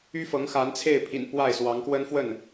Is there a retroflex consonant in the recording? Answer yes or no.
no